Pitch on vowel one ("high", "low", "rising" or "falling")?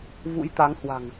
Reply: rising